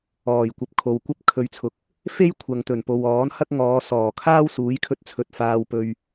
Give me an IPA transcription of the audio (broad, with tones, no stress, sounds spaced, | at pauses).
ɔː˨˩ j kʷ ɐ˨ p̚ kʰ o˨ w kʷ ɐ˥ p̚ kʰ ɵ˨ ɥ t͡sʰ ʊ˨˥ k̚ | f e˥ j kʷʰ ɐ˨ ŋ t̪ ɵ˨˩ n p o˨ w ɔː˨˥ n h ɐ˥ k̚ ŋ ɔː˨˧ s ɔː˨˩ kʰ aː˥ w s uː˨˥ j kʰ ɵ˧ t̚ t͡sʰ ɵ˨ t̚ f aː˧ w p ɵ˧ ɥ